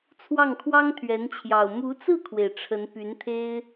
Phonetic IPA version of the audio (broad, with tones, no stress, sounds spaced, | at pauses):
t͡sʰ w ɑ˥˩ ŋ kʰ w ɑ˥ ŋ t̪ʰ ɥ ɛ˧˥ n t͡ɕʰ j ɑ˨˩ ʊ̯ m u˧˥ t͡s ɹ̩˥˩ kʰ w e˩ ɪ̯ ʈ͡ʂʰ ə˧˥ n p y˧˥ n t̪ʰ e˥ ɪ̯